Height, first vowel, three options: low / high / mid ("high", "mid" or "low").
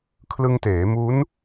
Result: high